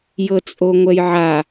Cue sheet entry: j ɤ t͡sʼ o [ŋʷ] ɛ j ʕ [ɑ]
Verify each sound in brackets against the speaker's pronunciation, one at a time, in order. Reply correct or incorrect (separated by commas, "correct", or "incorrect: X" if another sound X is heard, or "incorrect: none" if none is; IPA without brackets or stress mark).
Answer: correct, incorrect: a